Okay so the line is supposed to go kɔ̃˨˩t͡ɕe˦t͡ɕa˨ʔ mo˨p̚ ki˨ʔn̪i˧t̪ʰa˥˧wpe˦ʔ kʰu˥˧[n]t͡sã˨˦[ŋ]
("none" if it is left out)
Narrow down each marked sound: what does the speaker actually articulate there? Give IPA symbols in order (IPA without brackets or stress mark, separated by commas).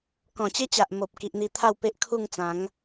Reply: ŋ, ŋ